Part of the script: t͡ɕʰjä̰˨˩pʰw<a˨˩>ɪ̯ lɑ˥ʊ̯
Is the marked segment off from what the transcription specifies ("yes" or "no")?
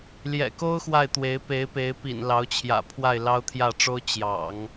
yes